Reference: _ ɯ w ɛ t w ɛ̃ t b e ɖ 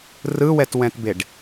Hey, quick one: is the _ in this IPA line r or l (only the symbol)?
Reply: r